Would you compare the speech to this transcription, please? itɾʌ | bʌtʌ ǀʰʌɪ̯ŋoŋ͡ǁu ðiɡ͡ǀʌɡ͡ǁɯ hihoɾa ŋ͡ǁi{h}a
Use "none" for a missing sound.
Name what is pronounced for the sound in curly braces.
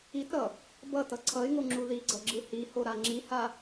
h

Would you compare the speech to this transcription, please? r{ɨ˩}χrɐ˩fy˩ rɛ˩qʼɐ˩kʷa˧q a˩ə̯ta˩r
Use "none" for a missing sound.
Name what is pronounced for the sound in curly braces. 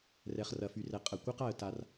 ɛ˩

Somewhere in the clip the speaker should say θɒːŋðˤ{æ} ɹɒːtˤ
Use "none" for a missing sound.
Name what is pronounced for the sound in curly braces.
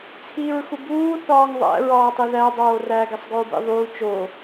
æ̰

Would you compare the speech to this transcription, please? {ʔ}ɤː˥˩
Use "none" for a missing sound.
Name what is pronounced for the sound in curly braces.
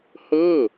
h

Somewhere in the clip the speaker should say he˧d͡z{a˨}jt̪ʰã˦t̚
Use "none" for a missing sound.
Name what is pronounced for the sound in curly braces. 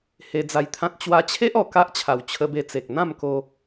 a˧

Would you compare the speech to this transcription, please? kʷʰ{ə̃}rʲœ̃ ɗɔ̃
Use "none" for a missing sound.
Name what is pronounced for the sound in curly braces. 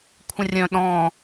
ə̃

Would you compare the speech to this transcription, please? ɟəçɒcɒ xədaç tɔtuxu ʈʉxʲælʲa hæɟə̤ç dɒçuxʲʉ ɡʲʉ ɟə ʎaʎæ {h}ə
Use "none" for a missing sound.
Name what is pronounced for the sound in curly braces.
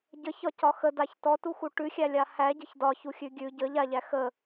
x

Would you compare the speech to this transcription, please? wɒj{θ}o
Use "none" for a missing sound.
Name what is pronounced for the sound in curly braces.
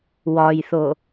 θ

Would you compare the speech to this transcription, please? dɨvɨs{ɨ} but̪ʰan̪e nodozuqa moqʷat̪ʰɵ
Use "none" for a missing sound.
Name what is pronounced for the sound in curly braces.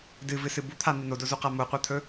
ɨ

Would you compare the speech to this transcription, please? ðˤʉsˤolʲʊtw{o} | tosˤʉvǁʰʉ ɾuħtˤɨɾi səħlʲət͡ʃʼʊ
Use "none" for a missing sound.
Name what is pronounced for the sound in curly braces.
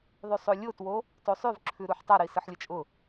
o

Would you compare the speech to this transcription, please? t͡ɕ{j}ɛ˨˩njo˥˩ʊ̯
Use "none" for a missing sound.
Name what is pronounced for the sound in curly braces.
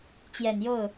j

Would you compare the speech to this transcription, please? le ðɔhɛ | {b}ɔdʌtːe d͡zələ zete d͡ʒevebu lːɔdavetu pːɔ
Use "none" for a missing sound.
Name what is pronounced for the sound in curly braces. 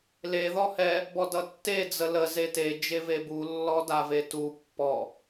b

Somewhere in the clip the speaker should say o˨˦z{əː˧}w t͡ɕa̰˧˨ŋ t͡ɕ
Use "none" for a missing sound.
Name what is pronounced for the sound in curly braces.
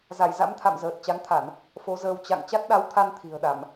əː˧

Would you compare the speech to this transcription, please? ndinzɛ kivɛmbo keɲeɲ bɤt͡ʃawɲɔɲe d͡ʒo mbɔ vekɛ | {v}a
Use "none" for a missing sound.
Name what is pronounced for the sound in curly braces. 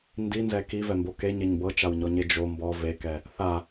θ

